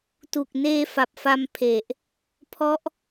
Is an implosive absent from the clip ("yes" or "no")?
yes